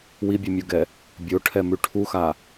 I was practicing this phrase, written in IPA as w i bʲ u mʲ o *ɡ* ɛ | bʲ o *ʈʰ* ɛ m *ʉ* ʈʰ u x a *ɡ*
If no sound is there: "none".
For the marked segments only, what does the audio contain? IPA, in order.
ɡ, ʈʰ, ʉ, none

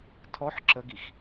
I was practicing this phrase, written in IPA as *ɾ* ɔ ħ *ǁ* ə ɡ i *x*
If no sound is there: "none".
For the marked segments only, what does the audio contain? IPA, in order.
tʰ, ǁ, x

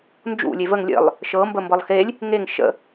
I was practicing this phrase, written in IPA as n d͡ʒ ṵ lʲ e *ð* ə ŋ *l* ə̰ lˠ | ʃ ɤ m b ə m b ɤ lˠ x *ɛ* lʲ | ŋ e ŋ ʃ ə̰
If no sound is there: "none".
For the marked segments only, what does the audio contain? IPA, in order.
v, lʲ, e

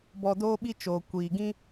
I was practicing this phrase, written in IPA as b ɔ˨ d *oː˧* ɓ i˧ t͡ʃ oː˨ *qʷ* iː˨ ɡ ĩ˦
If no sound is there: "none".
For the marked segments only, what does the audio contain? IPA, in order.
oː˧, kʷ

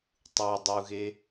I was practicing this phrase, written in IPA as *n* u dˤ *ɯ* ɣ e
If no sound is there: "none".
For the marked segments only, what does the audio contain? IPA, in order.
tˤ, u

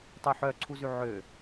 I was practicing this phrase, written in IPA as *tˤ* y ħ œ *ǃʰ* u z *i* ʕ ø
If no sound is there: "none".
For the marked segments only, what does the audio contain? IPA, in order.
tˤ, ǀʰ, y

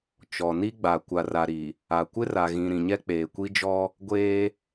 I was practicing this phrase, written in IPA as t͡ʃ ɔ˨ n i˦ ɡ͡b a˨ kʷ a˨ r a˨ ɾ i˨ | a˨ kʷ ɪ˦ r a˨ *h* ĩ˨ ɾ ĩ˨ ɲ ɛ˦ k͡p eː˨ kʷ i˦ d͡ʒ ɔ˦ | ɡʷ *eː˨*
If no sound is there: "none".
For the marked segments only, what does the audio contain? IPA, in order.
ɣ, eː˦

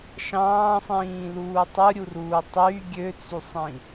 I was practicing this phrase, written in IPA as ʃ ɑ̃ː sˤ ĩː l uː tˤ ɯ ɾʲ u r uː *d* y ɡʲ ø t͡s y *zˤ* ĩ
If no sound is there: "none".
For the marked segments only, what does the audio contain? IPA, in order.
tˤ, sˤ

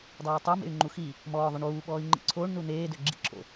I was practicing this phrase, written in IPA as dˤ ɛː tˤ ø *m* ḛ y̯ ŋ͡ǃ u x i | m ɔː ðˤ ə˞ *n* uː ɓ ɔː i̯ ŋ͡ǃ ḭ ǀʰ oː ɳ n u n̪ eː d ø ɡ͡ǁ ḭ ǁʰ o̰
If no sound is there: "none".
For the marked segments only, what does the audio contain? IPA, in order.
m, ɳ

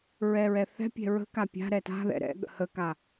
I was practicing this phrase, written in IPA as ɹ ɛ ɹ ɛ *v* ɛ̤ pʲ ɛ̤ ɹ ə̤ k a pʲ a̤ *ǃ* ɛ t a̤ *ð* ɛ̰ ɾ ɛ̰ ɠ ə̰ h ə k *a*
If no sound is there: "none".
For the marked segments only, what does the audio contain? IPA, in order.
θ, ɾ, ð, a

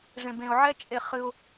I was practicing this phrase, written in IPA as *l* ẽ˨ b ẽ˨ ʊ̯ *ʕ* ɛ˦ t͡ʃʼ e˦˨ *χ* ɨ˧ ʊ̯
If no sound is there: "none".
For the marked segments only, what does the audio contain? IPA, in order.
ʐ, ʕ, χ

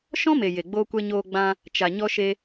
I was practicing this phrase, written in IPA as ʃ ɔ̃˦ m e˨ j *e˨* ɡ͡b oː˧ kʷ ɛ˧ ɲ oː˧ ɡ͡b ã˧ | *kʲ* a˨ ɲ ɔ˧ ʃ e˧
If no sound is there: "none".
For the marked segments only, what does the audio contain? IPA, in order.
e˨, t͡ʃ

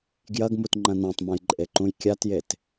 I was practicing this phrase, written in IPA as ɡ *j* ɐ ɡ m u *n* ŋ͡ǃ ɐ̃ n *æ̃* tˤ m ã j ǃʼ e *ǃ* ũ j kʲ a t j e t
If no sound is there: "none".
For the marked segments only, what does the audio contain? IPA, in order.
j, t, æ̃, ǃ

